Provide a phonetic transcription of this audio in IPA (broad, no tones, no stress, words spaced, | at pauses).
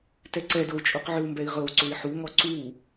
tɛǀɛdɤu̯ t͡ʃʼuqʕøu̯mbɛi̯ʁɤu̯ ǀøi̯ħuŋɔ ǀu